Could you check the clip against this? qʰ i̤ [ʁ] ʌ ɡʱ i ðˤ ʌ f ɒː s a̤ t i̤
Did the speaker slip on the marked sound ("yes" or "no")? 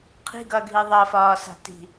yes